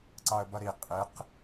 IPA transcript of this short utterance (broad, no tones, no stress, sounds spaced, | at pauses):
ǀ ɑ ə̯ b ʌ ɾ i qʼ ɪ q